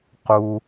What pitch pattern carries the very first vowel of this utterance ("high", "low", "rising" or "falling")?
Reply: high